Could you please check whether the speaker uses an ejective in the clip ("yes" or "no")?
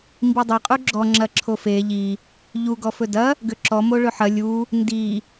yes